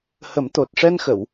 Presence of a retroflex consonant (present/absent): present